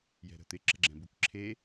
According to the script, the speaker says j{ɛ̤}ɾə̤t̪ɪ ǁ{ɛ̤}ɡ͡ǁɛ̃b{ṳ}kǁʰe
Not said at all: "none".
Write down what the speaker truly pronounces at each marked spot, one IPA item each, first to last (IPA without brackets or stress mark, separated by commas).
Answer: ɛ̤, ə̤, u